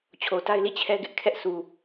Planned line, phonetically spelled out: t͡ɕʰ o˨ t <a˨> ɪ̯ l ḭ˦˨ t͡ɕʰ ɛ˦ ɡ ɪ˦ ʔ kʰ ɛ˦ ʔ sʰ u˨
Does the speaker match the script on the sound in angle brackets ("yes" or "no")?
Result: no